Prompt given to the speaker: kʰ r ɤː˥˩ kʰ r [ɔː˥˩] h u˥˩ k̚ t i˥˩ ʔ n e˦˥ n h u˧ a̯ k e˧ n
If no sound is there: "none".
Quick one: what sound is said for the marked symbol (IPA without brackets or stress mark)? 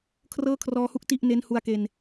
ɔː˧